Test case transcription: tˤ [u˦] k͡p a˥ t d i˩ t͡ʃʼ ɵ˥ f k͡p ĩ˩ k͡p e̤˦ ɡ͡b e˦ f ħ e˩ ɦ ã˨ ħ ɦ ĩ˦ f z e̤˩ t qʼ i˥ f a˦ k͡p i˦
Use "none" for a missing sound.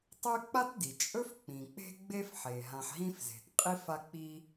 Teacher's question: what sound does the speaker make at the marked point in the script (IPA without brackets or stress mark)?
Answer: ʉ˦